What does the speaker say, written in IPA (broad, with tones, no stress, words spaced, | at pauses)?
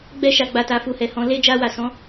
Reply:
ɡ͡bɛ˧ʃa˨ɡ͡ba˨ta˨ fu˨hɛ˨hɔ̃˨ le˧ d͡ʒa˧wa˨ sɔ̃˨˦